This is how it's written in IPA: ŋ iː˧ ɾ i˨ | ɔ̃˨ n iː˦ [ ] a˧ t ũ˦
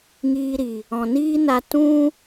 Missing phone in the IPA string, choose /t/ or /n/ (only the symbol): n